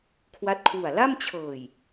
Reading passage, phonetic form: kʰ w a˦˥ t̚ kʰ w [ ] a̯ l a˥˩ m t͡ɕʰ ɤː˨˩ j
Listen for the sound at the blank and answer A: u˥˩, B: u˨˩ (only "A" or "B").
B